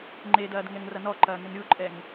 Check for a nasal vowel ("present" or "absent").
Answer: absent